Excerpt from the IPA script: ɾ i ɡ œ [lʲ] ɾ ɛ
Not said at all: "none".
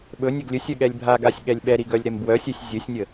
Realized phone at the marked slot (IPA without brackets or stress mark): lʲ